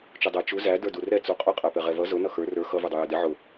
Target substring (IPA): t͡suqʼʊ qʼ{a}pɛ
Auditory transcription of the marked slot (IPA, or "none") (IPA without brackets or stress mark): æ